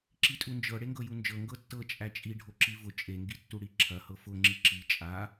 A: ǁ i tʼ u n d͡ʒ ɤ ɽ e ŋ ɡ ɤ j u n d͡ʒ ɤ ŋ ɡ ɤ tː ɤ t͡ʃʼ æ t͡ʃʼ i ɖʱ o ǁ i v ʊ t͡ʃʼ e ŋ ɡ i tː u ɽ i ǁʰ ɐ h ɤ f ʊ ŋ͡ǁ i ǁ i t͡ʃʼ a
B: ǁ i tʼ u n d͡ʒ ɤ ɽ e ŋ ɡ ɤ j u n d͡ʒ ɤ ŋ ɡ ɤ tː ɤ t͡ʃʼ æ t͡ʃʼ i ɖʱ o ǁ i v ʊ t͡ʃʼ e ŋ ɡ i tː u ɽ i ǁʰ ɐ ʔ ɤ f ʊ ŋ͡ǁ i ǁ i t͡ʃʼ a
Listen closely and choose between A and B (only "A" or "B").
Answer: A